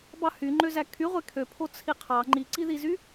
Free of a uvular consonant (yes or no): no